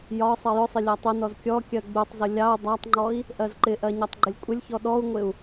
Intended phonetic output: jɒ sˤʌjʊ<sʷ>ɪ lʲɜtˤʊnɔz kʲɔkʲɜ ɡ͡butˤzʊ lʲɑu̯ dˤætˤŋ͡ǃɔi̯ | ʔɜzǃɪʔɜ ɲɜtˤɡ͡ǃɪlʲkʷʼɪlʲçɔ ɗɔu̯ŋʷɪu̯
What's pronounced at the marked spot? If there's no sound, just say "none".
sˤ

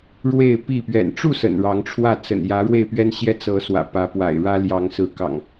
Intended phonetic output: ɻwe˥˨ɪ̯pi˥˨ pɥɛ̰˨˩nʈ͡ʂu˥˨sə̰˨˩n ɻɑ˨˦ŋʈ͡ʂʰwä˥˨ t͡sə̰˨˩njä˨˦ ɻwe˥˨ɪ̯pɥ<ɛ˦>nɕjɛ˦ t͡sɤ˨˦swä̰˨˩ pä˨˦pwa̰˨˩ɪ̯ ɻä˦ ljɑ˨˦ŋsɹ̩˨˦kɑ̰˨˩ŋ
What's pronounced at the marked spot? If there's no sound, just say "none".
ɛ˦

